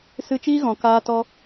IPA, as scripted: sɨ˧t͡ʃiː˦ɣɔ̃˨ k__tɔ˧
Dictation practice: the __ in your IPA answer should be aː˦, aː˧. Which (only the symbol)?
aː˧